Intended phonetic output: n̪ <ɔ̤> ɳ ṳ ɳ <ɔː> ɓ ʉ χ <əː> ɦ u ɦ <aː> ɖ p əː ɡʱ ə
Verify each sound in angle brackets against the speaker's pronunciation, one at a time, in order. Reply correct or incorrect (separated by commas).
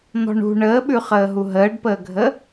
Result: correct, incorrect, correct, incorrect